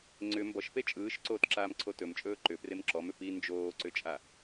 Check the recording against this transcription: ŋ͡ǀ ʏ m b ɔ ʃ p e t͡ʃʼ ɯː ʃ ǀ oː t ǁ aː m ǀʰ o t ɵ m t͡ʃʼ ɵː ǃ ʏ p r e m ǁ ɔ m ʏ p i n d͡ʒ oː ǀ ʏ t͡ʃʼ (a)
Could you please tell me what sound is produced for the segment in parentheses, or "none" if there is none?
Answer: a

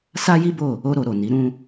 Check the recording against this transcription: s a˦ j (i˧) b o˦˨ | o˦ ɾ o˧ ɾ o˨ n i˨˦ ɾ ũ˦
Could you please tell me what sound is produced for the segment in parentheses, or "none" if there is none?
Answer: i˦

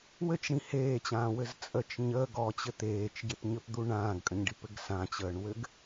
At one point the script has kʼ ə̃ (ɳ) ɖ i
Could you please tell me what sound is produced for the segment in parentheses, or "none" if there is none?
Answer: ɲ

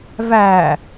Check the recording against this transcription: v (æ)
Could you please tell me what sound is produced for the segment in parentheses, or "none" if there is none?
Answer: æ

